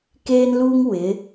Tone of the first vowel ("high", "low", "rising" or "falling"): high